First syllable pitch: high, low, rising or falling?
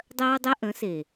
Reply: high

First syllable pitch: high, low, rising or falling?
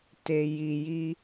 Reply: low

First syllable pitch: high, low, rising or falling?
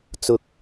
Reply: low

